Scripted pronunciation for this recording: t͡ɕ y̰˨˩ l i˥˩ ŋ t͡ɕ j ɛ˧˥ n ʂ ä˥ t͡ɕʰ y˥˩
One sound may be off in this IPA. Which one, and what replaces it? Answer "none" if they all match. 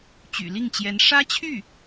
none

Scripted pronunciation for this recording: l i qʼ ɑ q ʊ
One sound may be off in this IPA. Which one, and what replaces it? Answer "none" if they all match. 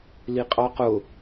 none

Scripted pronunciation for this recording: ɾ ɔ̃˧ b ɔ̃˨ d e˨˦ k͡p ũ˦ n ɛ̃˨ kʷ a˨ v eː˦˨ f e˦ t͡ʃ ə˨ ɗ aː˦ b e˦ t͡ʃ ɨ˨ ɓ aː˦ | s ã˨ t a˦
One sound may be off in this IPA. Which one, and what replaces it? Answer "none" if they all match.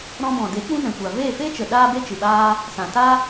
none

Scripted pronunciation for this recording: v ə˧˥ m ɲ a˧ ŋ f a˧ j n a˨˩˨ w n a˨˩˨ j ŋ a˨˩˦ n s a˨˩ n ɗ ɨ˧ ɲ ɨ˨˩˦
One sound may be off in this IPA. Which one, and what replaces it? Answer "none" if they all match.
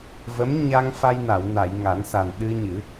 none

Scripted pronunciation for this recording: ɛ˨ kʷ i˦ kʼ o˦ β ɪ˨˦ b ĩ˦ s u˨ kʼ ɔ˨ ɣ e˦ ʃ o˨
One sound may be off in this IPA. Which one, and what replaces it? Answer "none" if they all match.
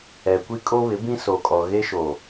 u˨ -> o˨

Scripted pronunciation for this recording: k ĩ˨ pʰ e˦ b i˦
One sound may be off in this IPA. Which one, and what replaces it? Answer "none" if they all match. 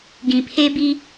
k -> ɡ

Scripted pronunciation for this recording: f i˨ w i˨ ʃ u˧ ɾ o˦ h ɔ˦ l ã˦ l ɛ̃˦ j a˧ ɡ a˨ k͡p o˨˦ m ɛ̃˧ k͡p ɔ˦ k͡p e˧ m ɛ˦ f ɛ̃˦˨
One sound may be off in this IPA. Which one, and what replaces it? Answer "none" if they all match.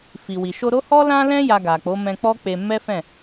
u˧ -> o˧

